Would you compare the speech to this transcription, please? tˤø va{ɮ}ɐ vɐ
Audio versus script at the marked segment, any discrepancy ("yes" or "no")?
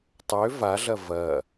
no